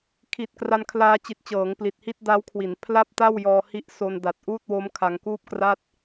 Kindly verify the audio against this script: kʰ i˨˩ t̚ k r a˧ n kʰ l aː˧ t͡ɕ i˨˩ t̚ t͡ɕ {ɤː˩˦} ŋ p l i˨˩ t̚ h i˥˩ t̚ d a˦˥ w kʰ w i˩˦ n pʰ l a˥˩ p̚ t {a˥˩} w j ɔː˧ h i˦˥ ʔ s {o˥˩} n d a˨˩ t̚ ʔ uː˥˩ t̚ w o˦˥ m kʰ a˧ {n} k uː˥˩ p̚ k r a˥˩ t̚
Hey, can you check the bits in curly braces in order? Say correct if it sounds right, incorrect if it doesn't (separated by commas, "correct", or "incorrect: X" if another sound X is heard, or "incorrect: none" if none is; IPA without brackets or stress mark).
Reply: correct, correct, incorrect: o˧, incorrect: ŋ